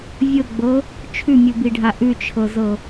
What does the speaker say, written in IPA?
vʲɤɡ͡bɤ | t͡ʃʰʉmʲubiɖʱa ʔʉt͡ʃʰɤzɤ

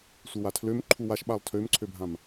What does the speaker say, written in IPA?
sʷɯwatʰløm ǃʰuwaʃɓalˠ tʰømǀʰøbʱãm

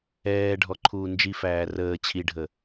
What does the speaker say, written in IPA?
ɛːɖʱɔǃʰuː nd͡ʒifæː rəː t͡ɕʰiɖʱə

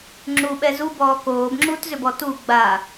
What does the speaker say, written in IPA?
ŋ͡ǁuɓɛ zubɔː koːbŋ͡ǁuːtzʏbɔ tu ɡ͡ba

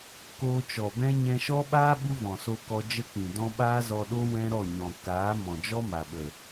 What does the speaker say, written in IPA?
koː˧t͡ʃɔ˨bɛ̃˦ ɲɛ̃˧ʃɔ˦ɓaː˦ ɓu˦vɔ̃˨so˧ kɔ˧ d͡ʒə˦k͡pĩ˨dɔ̃˦ ɓaː˦zɔ˧ɗo˦ wɛ̃˦ɾɔ˦˨ɲɔ̃˨ kaː˨˦ mɔ̃˨d͡ʒɔ˦ma˨ɓə˨

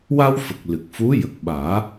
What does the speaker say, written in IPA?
wa˧wfə˨˩k̚ lɨ˨˩k̚fu˧˥ jə˨˩k̚ɓaː˨˩˦

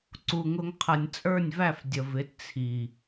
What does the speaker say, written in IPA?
ǀu˨ŋʊ˧ŋqʰʌ˨nʲ t͡sʼə˞˦˨nʲvæ˦˨fdʲə˨vɪ˨˦t t͡sʰi˨

